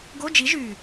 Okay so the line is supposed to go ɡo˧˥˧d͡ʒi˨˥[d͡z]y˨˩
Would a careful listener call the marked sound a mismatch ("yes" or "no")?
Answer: yes